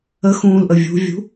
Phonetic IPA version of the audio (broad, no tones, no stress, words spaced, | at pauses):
ə xũːlʔəvʲṳvʲṳ